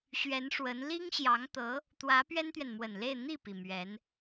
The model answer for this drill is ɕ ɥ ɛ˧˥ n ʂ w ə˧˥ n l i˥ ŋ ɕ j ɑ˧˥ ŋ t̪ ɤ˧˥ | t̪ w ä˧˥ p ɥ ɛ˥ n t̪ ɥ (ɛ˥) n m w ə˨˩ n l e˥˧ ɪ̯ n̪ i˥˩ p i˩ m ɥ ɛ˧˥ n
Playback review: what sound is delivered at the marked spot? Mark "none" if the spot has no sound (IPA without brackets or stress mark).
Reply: ɛ˨